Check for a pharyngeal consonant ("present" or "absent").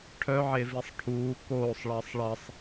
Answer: present